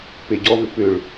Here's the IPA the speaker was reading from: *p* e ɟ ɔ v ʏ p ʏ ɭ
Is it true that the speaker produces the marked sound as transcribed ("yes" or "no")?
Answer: yes